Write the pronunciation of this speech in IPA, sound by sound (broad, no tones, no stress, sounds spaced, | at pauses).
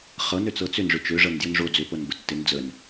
χ ɤ n ø t͡s ɤ t͡s ʏ n ʐ ʏ t͡ʃ ø ʐ ɤ n d j ʏ n ʐ o d͡z ʏ p ɤ n b ə tː ɪ n d͡z ə n